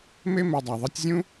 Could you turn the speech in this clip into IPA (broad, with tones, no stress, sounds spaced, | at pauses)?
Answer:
m e˦ m e˧ dˤ a˨ ðˤ ʌ˦ tʲ zʲ ũ˦